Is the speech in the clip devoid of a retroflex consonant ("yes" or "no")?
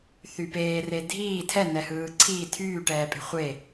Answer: no